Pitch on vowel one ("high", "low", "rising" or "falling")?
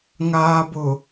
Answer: low